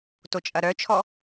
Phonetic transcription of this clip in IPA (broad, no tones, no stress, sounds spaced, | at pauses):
t o t͡ʃʼ ɐ ɾ œ t͡ʃʰ ɔ